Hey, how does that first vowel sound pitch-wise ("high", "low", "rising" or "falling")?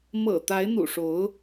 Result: low